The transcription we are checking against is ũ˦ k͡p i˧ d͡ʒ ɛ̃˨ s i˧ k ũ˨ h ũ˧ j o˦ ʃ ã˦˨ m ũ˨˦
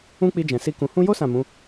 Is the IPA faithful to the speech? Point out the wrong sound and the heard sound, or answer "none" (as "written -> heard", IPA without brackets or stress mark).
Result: ʃ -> s